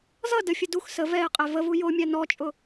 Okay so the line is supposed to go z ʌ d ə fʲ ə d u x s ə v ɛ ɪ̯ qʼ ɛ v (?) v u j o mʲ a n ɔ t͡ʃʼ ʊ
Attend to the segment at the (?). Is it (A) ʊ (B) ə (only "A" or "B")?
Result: B